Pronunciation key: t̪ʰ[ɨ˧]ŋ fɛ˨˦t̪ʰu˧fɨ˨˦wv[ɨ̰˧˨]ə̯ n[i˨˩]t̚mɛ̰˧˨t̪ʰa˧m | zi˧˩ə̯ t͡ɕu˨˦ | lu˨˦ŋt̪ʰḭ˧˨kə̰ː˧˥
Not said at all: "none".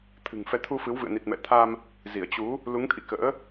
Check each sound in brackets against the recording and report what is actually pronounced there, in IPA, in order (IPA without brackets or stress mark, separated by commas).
ɨ̤˨˩, ɨ̰˧˨, i˨˩